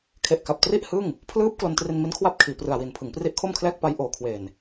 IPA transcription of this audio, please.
kʰ e˨˩ ʔ k a˨˩ p̚ t r i˥˩ ʔ h ɯ˥˩ ŋ | pʰ l ɯː˦˥ p̚ k l o˧ n t r i˧ n m i˦˥ n kʰ w a˦˥ p̚ kʰ iː˩˦ p r ɯ˨˩ a̯ w i˨˩ n pʰ ɯ˩˦ ŋ p r i˦˥ ʔ kʰ o˥˩ m kʰ l ɛː˥˩ k̚ p a˧ j ʔ oː˨˩ kʰ w eː˨˩ n

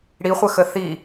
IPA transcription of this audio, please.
ɽ i χʷ ə x ə θ i

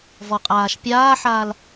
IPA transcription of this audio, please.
v ɔ qʼ aː ʃ pʲ aː ħ aː l

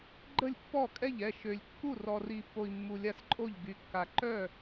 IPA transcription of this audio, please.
ɡ͡ǃ ə˥˩ lʲ pː ɔ˥˩ kʼ ɛ˥˩ ʎ ɛ˥˩ ʃ ø˨ lʲ kː u˥˩ r ɔ˨ r i˨ pː o˨ i̯ mː u˨ lʲ a˥˩ s ǃʼ o˥˩ ʎ ɡ y˨ kː a˨ ǃ œ˥˩

